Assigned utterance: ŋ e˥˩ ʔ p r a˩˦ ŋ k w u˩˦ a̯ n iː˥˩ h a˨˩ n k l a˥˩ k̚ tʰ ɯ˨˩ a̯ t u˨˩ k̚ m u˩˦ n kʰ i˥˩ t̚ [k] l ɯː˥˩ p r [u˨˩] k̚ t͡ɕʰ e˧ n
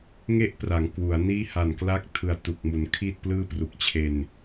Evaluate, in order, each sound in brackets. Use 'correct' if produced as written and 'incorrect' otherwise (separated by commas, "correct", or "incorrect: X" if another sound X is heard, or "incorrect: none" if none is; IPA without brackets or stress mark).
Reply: incorrect: p, correct